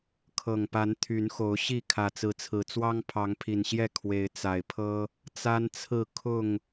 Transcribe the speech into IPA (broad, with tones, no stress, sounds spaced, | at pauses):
kʰ ɤ˨˩ ŋ p a˨˦ n t̪ʰ y˨˦ n x o˨˦ ʊ̯ ɕ i˥˨ kʰ ä˨˩ t͡s ɹ̩˨˦ t͡sʰ ɹ̩˨˩ t͡s w ɑ˦ ŋ pʰ ɑ˨˦ ŋ pʰ i˨˩ n ɕ j ɛ˥˨ kʰ w e˨˦ ɪ̯ t͡s a˨˩ ɪ̯ pʰ ɤ˦ | t͡s a˦ n t͡sʰ ɹ̩˥˨ kʰ ʊ˥˨ ŋ